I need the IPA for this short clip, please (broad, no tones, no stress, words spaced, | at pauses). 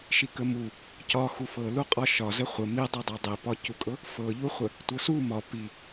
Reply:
ʃikəmu | cɒ xufɤluqʼɒ ʃɒzə χʷə midˤɤdˤɤ dˤipɒcukʼɤ | fɤʎuχʷə | tʷɤsu mɒ pi